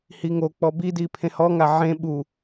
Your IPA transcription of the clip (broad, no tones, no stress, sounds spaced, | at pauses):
h i ŋ o k͡p ɔ b i d i pʰ ẽ h ɔ ŋ a ʕ ẽ ɓ u